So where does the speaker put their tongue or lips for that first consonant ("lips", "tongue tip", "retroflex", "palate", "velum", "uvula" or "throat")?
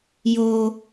palate